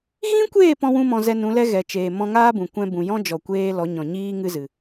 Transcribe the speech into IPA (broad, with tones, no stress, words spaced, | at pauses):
ɣĩ˦kʷeː˦˨ pɔ̃˦wũ˦mɔ̃˧ zɛ˧nũ˨˦lɛ˦ ɣɛ˨t͡ʃeː˨ mɔ̃˧ŋaː˦bũ˨ kʷɛ̃˧bũ˨jɔ̃˦ d͡ʒɔ˨kʷeː˧ lɔ˨˦ɲɔ̃˨ɲiː˦ ŋɨ˦zɨ˨